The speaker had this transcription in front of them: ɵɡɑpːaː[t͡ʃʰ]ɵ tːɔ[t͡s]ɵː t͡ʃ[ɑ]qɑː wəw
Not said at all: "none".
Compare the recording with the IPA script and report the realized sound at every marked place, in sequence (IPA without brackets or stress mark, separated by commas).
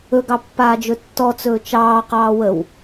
d͡ʒ, t͡s, ɑː